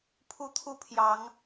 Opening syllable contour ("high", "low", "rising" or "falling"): high